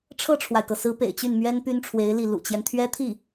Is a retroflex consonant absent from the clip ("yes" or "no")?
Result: no